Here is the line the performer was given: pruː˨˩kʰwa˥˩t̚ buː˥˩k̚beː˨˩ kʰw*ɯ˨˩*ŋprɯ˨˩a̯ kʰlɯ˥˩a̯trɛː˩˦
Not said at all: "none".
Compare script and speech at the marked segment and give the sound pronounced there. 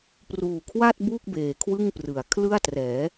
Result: ɯ˥˩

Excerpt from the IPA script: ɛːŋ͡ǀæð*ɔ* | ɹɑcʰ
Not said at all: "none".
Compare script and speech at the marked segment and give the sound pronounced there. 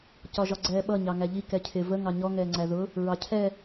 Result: ʊ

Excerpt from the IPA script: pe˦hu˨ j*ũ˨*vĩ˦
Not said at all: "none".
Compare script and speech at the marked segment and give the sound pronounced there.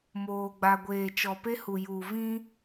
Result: u˨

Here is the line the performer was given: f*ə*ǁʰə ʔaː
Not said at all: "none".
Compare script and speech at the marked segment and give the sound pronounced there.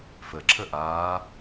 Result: ə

